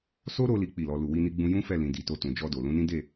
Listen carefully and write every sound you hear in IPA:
s o˦ ɾ o˧ l i˦ k͡p i˦˨ l ɔ˧ l u˨ w i˧ n i˧ ɡ͡b ũ˧ j ũ˦ f ɛ˦˨ l ĩ˨ d i˨ t o˧ t ũ˨ d͡ʒ ɔ˧ d o˨ l ũ˨˦ n ĩ˦ d e˦˨

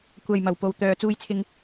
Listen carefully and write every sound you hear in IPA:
kʷ ɐ˨ j m ɐ˨˩ w p o˨ w t̪ œː˨ t͡s uː˧ j t͡sʰ ɪ˧ ŋ

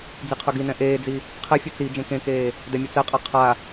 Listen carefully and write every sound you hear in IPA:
d͡z i qʰ ɵ ɡ i n ɛ̃ ʔ eː d͡z i | qʰ ɛ fʲ ɵ t͡s i d͡ʒ ẽ k ẽ k eː | d ɛ mʲ ɵ t͡s ɛ qʼ a qʰ a

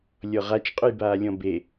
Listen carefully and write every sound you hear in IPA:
lʲ ɔ ʁ a t͡ʃ qʼ ʊ j b aː lʲ ɔ̃ b e

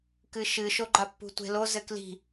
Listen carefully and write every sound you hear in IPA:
k ɨ ʃ ɨ ʃ o ɡ͡ǃ a pː ṳ tʷ e̤ l o z ɘ k l i̤

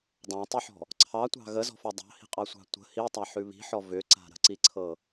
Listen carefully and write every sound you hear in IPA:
dˤ ã tˤ i ħ ɔ̤ | ǀʰ ɑ tʷ ɑ̤ ɣ ə z ɔ̤ f ɔ dˤ ɑ̤ h i̤ qʼ ɑ sʷ ɑ̤ tʷ ə̤ h i tˤ a ħ ʉ β i̤ ħ ɔ v ʏ ǀ a̤ ɾ ə̤ ǀ i ǀʰ ɤ

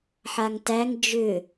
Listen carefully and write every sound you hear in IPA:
ħ a ŋ t æ ŋ d͡ʒ ʏ

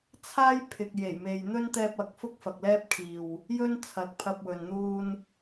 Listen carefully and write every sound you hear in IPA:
t͡sʰ aː˥ j pʰ ɪ˨ k̚ j e˨˩ j m e˨ j n̪ ɵ˥ n t̪ ɛː˧ p̚ ɐ˨˥ k̚ f ʊ˥ k̚ f ɐ˨ k̚ l ɛː˥ p̚ kʰ iː˨ w | j ɵ˥ n t͡sʰ ɐ˨ k̚ pʰ ɐ˧ p̚ w ɵ˨ n n̪ uː˧ n

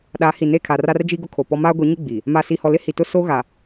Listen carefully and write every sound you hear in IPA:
ɗ a˨˦ h i˨ n e˦˨ kʰ a˨ r a˦ r d͡ʒ i˦ ɡ ʊ˦ kʰ o˨ p ɔ˦ m aː˦ ɡʷ i˨˦ ɲ ɪ˦ ɡ͡b i˨ | m a˨ s i˨ h ɔ˨ l ɪ˦ h i˨ t ʊ˦ s o˦ ɣ a˨

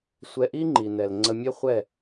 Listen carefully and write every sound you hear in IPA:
sʷ ɛ˧ ʔ i˦ ŋ͡ǃ i˨ n ɛ˨ l ŋ͡ǀ ə˧ mʲ ɛ˦ χʷ ɛ˦˨

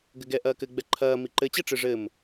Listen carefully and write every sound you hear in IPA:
ɡ ɘ ɡ ɛ ʔ ɐː k ɘ ɡ͡b ɛ ǃʰ ɐː m i ǃ ɘ t͡ɕ ɛ ʈ͡ʂ ɨ ʐ ɘ m

